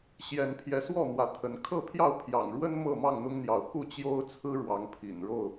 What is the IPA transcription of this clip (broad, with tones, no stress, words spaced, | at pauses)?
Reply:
ɕjɛ˨˦npʰjɛ˨˦swɔ˥˨ n̪wä˨˦t̪ʰə˨˦n kʰɤ˥˨pʰjɑ˥˨ʊ̯ pʰjɑ̰˨˩ŋɻwə˦n mɤ˥˨mɑ˥˨ŋn̪ʊ˦ŋn̪jɑ˨˦ʊ̯ ku˥˨t͡ɕjo˦ʊ̯t͡sʰɹ̩˦ ɻwɑ˨˦ŋpʰḭ˨˩nɻo˥˨ʊ̯